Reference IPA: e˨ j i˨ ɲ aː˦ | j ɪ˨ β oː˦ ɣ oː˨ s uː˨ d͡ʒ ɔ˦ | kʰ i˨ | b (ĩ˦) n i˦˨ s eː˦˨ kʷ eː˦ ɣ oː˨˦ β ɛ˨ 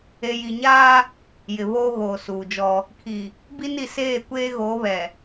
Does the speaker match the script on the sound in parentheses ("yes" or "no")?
no